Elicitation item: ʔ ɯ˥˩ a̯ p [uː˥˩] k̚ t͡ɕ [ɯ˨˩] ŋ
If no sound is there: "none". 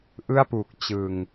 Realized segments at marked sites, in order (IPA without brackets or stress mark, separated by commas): uː˨˩, ɯ˨˩